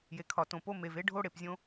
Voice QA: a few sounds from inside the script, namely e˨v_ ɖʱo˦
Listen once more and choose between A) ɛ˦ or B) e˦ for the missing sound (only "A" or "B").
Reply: B